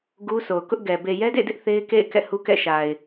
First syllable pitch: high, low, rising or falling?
high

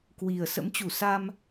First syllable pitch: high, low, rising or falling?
low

